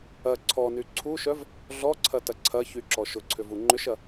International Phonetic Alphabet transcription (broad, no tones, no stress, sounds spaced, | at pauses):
ɐ ǀʰ ɔ n y ǀʰ u ʃ œ v | ɮ ɔ ǀʰ ɐ t ɐ ǀʰ ɐ ç y ǁ ɔ ʃ ʊ ǀʰ ʏ v u ŋ͡ǃ ʏ ʃ ɐ